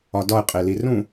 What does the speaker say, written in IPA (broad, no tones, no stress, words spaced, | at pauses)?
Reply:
ɒdɒɪ̯ qʼelirũ